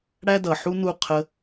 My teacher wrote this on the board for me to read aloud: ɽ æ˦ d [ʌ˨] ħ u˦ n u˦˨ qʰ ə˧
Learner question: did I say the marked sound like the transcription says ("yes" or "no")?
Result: yes